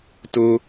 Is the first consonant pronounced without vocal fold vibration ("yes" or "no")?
yes